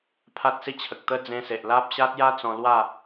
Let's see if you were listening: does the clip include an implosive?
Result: no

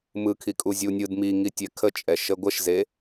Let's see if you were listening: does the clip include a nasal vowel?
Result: no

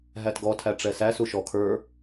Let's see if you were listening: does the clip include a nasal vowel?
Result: no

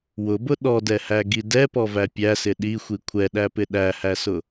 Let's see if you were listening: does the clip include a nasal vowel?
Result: no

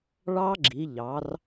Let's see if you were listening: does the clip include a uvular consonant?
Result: no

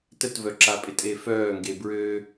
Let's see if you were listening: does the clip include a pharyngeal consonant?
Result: no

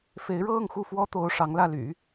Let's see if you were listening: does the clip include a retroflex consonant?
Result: yes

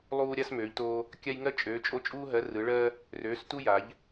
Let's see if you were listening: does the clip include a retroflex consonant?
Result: yes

